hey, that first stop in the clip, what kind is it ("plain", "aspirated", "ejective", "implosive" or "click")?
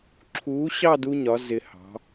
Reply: click